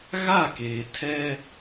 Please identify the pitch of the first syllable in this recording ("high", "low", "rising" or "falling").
falling